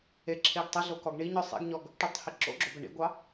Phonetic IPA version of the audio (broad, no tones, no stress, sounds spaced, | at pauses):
e ǁʰ e ɡ tˤ ɘ ɮ o k ɔ ɡ ɳ i ɲ ɔ sˤ ḭ ɡ ɲ ɔ ɡ | ʈ ø tˤ h i ǁ o̰ ɡ͡ǁ o b ɘ ɳ ḭ ɡʷ ɑ